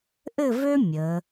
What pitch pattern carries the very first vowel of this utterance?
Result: falling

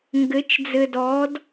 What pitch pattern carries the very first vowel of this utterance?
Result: rising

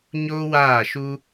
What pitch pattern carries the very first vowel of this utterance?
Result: high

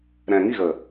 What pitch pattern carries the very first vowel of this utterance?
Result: low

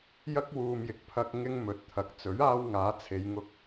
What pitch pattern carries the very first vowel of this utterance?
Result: high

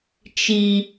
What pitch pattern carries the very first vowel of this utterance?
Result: low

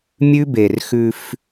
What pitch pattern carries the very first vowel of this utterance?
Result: high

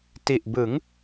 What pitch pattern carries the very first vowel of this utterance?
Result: low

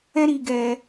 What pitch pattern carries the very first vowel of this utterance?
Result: high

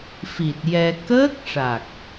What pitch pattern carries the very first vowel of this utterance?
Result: low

